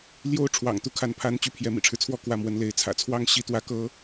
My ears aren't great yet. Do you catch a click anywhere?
no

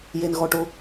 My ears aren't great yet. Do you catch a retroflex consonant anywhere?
yes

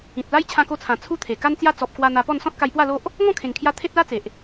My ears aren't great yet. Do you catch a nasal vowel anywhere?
yes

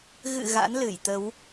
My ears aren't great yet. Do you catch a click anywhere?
no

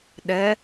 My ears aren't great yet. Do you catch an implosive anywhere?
yes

